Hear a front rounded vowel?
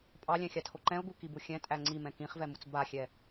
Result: no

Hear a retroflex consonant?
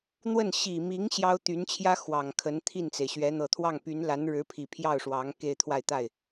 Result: yes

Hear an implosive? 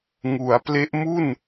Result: no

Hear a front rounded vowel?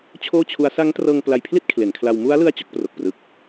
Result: no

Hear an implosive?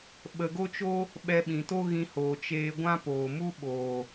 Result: yes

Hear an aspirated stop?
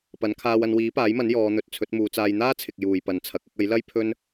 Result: yes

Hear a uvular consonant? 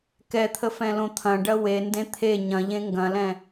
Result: no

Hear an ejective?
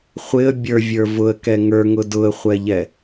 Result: no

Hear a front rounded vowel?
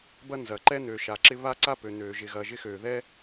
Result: yes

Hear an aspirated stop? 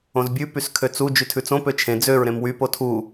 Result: yes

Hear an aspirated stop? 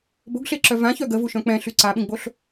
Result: no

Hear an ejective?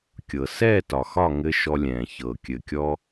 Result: no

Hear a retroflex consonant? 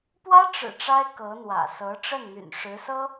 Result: yes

